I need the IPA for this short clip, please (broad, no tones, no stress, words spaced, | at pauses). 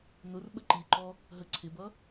nʊr ɓəǃiǃɔ | ɦə ǀʰɪbʌ